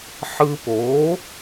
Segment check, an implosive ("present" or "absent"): absent